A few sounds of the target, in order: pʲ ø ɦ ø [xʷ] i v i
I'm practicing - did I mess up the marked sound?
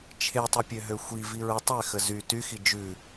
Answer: no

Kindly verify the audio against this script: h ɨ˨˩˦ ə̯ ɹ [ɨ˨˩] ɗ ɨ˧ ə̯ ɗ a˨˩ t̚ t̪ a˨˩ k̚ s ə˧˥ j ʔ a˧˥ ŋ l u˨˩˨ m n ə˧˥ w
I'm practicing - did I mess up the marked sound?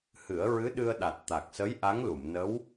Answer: yes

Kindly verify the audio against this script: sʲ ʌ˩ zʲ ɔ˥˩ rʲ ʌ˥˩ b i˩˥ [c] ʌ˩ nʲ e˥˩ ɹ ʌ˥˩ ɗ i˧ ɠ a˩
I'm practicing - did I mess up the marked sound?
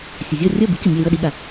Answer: no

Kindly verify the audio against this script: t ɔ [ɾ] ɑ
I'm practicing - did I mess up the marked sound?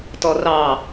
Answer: yes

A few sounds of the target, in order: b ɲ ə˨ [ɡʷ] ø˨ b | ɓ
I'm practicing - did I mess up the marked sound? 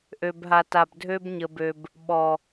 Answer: yes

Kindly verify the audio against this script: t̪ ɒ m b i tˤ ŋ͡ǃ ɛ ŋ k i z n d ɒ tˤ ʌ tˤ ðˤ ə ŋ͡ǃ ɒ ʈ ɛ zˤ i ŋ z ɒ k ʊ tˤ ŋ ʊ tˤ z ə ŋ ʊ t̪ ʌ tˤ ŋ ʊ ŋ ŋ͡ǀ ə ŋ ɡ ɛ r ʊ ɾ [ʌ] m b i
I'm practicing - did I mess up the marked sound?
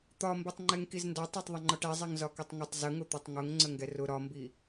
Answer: yes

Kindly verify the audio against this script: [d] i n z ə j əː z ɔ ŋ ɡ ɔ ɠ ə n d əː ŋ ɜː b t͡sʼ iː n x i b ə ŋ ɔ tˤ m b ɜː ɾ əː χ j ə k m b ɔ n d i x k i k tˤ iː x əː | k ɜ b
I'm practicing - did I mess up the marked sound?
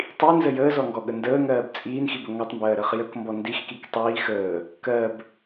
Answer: yes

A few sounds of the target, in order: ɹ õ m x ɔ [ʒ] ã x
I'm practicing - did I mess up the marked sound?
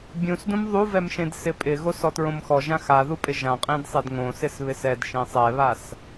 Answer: no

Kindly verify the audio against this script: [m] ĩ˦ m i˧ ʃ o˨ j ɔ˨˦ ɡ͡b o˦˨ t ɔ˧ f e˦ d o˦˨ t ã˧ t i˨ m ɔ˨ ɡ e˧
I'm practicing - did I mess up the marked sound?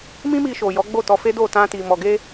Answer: no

